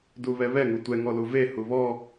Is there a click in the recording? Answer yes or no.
no